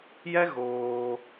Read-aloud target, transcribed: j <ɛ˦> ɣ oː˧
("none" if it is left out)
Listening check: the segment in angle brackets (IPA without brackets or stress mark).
ɛ˦